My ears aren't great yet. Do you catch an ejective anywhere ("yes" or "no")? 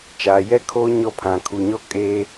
yes